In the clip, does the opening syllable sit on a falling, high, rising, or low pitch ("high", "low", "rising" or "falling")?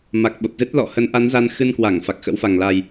low